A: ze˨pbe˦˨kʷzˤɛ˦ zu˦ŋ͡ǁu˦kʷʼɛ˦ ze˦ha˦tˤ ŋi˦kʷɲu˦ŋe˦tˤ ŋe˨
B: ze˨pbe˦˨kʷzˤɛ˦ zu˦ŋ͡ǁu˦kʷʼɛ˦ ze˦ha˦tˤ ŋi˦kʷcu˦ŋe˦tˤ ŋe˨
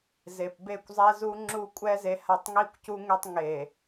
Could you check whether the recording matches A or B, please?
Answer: B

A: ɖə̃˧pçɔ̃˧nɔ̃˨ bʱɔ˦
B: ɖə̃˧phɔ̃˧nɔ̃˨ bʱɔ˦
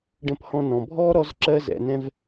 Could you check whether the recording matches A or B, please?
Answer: B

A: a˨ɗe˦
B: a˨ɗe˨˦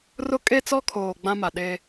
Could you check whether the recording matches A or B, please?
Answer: A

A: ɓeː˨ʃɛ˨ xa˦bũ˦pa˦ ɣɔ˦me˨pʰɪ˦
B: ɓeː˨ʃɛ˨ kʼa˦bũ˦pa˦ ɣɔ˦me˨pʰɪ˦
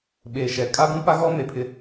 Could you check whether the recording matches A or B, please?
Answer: B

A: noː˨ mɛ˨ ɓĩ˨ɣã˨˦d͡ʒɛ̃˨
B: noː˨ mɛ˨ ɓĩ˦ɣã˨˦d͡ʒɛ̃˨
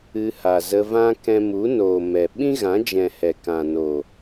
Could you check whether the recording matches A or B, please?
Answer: B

